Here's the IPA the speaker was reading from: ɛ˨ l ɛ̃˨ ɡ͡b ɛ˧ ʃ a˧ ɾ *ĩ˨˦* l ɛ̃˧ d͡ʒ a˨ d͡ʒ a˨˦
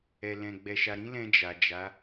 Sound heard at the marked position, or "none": ĩ˦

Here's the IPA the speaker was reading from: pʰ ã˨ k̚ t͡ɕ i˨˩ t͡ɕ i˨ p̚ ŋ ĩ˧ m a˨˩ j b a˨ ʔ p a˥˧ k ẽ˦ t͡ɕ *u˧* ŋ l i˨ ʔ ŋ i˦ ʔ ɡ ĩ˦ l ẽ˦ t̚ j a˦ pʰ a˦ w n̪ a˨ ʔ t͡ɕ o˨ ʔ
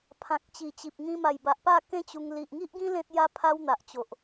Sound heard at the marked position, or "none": u˧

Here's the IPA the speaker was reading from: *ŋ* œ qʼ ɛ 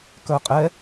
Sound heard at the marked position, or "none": k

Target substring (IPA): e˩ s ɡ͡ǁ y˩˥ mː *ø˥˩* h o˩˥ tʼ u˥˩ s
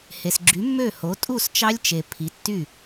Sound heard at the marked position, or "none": ø˥˩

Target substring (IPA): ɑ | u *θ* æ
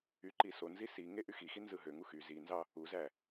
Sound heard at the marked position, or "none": z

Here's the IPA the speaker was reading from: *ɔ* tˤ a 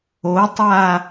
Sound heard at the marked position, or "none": o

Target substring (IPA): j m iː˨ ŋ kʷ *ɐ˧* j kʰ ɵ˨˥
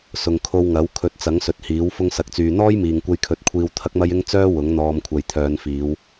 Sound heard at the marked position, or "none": ɐ˧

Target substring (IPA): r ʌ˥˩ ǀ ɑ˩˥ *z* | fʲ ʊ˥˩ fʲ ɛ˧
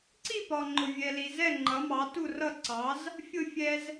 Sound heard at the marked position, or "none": z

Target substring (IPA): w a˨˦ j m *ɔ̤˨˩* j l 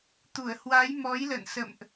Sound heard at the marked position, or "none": ɔ˨˦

